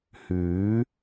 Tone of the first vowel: rising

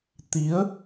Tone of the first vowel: rising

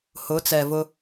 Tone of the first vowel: rising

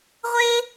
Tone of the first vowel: high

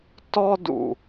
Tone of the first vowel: high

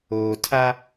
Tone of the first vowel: low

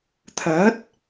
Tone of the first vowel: rising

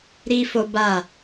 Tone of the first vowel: high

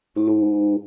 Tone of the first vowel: high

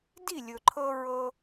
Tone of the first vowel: falling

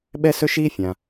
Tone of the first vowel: high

